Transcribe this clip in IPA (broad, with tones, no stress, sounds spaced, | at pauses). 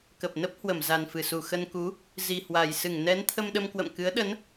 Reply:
k ə˨˩ p̚ n ə˦˥ p̚ h w ə˧˩ m z a˨˩ n f ɨ˧˩ s u˧˩ x ə˧ n k u˨˦ | z i˨˩ h w a˨˩ j s ɨ˧˩ ŋ n ɛ˨˦ n t̪ʰ ə˧ m ɗ ə˧ m k w ə̰˧˨ m k ɨ˨˦ ə̯ ɗ ə˨˦ n